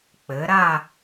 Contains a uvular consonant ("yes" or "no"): no